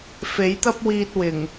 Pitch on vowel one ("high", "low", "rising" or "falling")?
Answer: rising